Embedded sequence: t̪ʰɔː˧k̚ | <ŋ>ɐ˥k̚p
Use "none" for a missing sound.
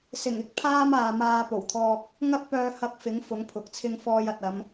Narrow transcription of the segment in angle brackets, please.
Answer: ŋ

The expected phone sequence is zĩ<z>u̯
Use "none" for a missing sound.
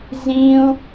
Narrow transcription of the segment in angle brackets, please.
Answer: none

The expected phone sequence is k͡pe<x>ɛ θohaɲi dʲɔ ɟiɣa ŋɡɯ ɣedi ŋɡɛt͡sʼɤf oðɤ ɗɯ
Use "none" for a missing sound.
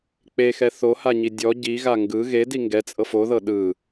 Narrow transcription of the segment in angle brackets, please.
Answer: x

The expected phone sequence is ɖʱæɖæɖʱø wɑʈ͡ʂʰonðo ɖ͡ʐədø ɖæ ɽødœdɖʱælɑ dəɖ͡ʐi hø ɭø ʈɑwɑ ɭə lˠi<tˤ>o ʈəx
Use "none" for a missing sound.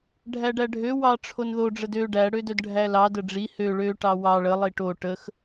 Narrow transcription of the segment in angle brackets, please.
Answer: ʈ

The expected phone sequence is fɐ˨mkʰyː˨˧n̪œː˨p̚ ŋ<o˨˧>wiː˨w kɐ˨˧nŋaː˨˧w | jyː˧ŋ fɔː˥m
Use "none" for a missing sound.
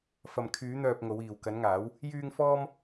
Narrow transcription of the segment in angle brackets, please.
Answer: o˨˧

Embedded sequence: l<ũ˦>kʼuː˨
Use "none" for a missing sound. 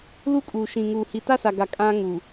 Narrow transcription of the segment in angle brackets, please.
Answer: u˦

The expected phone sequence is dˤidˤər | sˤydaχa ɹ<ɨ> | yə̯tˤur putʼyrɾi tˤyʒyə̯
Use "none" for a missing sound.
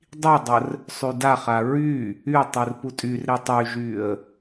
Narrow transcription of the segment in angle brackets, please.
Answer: y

